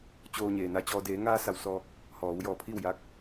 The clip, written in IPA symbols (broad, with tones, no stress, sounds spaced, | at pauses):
t͡ɕ oː˧ ɲ eː˩ n a˧ t͡ɕ ɔː˧ d eː˩˧ ŋ aː˧ s a˧˩ w s ɔː˧ k̚ | h ɔː˩˧ w j ɔː˧˩ pʰ i˥˨ w j a˧˥ k̚